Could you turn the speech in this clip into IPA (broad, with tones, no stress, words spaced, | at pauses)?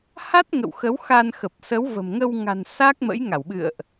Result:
ha˦˥t̚ ŋə̰˧˨wxə˨˦wxa˧n xə˨˩p̚sə˨˦wvə̤˨˩mŋə˧w ŋa̤˨˩n sa˦˥k̚mə̰˧˥j ŋa˧˩wɓɨ̰˧˨ə̯ʔ